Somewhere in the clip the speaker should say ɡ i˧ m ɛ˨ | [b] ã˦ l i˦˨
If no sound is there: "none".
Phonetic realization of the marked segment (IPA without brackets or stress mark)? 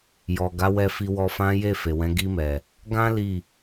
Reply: ɡ